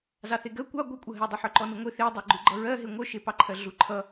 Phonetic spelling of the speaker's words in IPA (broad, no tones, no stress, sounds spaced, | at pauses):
z ɑ θ e ɡ ɜ kʷ ɑ ɡʷ œ kʷʼ ʌ ɦ e dˤ ʌ ħ œ ǃ ɔ n u ŋʷ e θ e dˤ e ɡ͡ǃ u ɡ͡ǃ ʌ ɹ ɜ ɦ e ŋʷ œ ʃ e p ɑ ǃʰ ɜ ɮ u ǃʰ ʌ